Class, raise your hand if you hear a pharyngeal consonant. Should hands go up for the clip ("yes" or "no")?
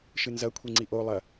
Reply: no